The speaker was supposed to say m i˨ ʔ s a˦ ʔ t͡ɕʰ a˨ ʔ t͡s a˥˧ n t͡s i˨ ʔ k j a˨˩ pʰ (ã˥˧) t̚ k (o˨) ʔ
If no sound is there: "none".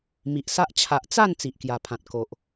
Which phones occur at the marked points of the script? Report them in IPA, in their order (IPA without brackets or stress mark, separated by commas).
ã˨, o˨